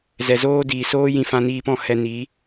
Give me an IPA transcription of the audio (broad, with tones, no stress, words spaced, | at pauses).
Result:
zɛ˨zoː˦diː˨ soː˦jĩ˧ fã˧niː˧pɔ̃˦˨ hɛ˧ni˨˦